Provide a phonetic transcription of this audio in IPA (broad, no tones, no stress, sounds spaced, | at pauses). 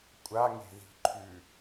kʷʼ a ŋ e̤ ð i̤ ǃʰ ʉ